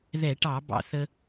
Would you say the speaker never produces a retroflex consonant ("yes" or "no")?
no